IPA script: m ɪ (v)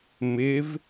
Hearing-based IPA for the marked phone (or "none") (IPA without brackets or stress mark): v